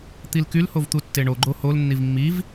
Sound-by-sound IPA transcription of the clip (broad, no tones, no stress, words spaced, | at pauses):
t̪ilkyl hovt̪utːeɳo ɡ͡ǃohol nːivmːiv